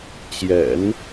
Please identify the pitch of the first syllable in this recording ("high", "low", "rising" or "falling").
low